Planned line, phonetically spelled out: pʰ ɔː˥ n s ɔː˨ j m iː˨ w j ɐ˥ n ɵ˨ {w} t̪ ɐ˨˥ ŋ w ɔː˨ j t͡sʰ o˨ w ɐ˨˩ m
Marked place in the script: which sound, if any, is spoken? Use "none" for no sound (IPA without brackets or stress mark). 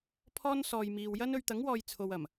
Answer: ɥ